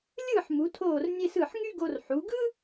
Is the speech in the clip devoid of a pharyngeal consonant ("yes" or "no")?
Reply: no